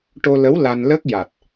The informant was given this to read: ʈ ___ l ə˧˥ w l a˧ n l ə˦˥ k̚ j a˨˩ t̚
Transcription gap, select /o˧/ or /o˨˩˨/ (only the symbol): o˧